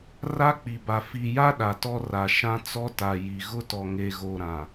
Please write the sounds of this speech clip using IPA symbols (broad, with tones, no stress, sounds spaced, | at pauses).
r a˦ k͡p i˨ b a˨ f i˨ j a˦ ɗ a˨ t ɔ˦ r a˨ ʃ ã˦ t͡s ɔ˦ t a˨ j i˨ ɣ ʊ˦ t ɔ˨ ŋ e˨ ɣ o˨ ɾ ã˨